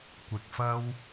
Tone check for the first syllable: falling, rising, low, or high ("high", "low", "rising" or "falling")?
low